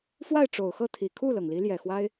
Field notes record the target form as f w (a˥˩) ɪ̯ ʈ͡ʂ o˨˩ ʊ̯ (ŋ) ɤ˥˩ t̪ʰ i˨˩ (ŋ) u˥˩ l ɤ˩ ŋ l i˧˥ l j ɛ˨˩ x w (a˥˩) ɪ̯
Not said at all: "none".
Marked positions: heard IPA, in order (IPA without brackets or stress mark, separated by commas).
a˥˩, x, kʰ, a˥